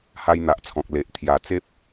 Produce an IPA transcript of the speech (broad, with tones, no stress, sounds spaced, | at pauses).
h a˦ j n̪ a˨ ʔ t͡sʰ ɔ̃˨ k̚ l e˨ ʔ t̪ʰ j a˨˩ t͡s e˦ p̚